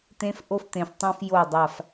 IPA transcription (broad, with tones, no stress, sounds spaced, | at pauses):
t̪ ẽ˦ f ʔ o˦ f t̪ ẽ˨ f tˤ ũ˧ f j o˦˨ dˤ a˦˨ f